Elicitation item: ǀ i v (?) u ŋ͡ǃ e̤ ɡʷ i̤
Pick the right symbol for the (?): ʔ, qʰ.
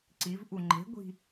ʔ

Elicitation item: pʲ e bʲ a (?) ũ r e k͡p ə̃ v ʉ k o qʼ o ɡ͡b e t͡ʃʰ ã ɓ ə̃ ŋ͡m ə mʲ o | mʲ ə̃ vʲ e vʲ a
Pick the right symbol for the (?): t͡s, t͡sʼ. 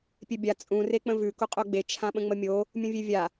t͡sʼ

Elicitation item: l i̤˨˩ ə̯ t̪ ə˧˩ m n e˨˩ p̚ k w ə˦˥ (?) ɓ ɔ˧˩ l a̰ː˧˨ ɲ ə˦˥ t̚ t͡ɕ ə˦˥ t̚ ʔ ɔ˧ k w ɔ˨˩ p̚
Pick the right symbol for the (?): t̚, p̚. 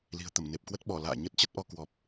t̚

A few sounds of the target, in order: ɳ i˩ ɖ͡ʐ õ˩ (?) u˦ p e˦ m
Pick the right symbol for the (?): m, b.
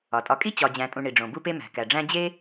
b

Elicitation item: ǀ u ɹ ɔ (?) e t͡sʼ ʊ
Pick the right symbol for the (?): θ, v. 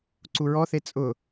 θ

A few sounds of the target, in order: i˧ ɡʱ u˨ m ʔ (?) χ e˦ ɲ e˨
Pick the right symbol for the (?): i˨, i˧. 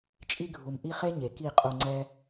i˧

